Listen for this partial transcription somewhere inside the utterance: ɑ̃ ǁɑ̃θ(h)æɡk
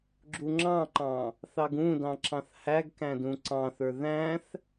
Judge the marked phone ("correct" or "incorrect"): correct